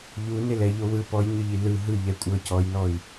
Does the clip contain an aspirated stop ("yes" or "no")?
no